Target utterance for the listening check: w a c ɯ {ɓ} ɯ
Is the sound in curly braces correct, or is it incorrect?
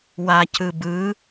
incorrect